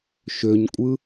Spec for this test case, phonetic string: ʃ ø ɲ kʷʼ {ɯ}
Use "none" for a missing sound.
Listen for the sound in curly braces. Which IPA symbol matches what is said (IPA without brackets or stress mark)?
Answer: ɯ